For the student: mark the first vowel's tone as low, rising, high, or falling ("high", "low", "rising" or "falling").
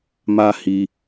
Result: high